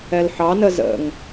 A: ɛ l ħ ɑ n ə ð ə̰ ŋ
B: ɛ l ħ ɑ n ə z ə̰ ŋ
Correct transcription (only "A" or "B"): B